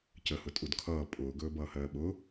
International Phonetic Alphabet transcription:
cəhʊ tʼudkʰʌː pʼʊːɡɵː bʌːhɜːɓʊ

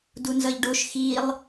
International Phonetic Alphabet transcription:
dunzʌʎɖoʃ xilˠ

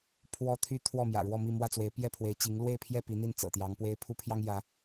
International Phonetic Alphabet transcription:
pʰwɔ˦t̪ʰy˦ t̪ʰwɔ˥˨mjä̰˨˩ɻwɔ˥˨mi˥˨ mwä˥˨t͡swe˨˦ɪ̯pjɛ˥˨ pʰwe˨˦ɪ̯t͡ɕi˨˦ŋ lwe˥˨ɪ̯pʰjɛ˥˨ pi˨˦n̪i˥˨n t͡sɤ̰˨˩t̪jɑ˨˦ŋpwe˦ɪ̯ pʰu˦pʰjɑ˦ŋ jä˨˦

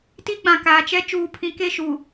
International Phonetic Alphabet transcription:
ti˦ɡ͡bã˨kaː˨t͡ʃɛ˦ t͡ʃuː˨pʰĩ˨ke˦˨ʃu˨

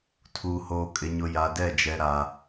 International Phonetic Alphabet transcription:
tʰuː˨hoː˨kʼɪ˨ɲʊ˨ ja˨dɛ˦˨d͡ʒɛ˨ ɾa˨

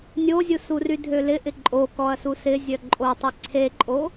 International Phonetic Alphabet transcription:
nʲozʲusury dʱølɪ ʔɪǃʼo kɔɐ̯susɪ zʲœǃʼotˤi ǀʰeǃʼo

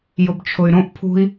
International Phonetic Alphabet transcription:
jʊbt͡ʃʰʊy̯ɾõʔ pʰṳi̯

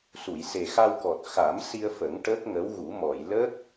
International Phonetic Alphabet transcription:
su˨˩˨jse˨˩xa˧wkɔ˨˩t̚ xa˨˩˦m si˧ə̯fə˨˩˦ŋ ʈəː˦˥k̚ŋə˧˥wɣu˨˩˦ mɔ˨˩˨j ləː˦˥k̚

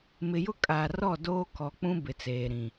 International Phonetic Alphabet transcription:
mɪ˨jʊ˦kʼaː˨rɔ˦˨ doː˦kɔ˨k͡pũ˦ bɪ˨t͡seː˨ɾĩ˨

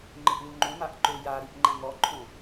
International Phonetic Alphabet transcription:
ŋ͡ǃɪʔluŋ͡ǃõmaʔ ǃøjaɾiʔ ŋ͡ǃæ̃ŋɔǃʰõ

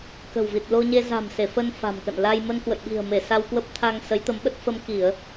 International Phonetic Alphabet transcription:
kə̤˨˩wvi˨˩t̚lo˧ɲe˧ za̤˨˩m se˧˩fə˧n fa̤˨˩mkə̰˧˨n la˧j mə˧nkwə̰˧˨jɓi̤˨˩ə̯me˧˩ sa˧wkwə˦˥p̚t̪ʰa˧ŋ sə˨˦jt̪ə˨˦mɓə˦˥t̚ fə˧m ki˧˩˨ə̯

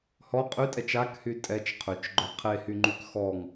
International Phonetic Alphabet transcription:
hɔ qʼytʼɛt͡ʃ akhy tʼɛt͡ʃ qʰøt͡ʃɡ͡ǃœ qʰehyŋ͡ǃyk xɔŋ

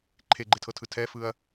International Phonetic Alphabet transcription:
ǃʰeɡ͡ǃetʰɤtʰɯ tʰɛfɯɐ̯

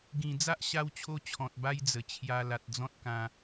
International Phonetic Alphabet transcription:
ɡĩ˨˩d͡za˦ʔ ɕa˥˧wt͡ɕʰo˥˧t͡ɕʰɔ̃˨t̚ ba˦jd͡zə˨˩ t͡ɕʰja˧la˨t̚d͡zɔ̃˦t̚ kã˧

